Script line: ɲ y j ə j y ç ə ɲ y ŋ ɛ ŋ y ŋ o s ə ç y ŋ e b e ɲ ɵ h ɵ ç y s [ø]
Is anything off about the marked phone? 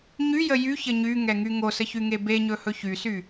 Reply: yes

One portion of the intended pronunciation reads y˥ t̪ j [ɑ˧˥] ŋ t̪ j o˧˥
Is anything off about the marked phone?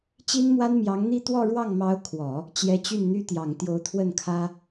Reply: yes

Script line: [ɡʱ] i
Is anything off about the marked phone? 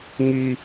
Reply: yes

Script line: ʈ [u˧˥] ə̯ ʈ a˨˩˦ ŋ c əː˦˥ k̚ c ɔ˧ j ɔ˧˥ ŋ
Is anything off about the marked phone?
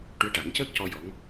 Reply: no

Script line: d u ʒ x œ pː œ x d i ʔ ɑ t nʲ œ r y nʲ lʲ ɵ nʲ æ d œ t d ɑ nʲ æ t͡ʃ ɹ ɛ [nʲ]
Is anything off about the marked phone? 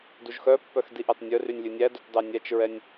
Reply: no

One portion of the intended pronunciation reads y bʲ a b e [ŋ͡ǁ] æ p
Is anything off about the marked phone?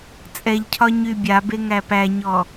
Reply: yes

